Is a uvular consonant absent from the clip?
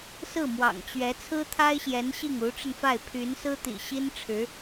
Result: yes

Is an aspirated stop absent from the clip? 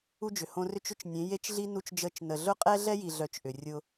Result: yes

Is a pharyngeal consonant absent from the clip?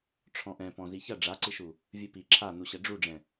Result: yes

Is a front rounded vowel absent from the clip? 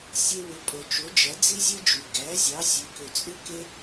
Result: no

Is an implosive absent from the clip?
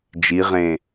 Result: yes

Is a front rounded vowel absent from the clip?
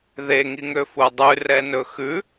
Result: no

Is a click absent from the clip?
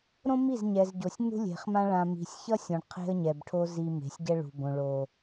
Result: yes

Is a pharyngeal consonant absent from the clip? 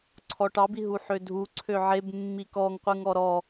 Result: no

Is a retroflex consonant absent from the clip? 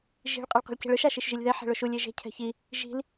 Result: no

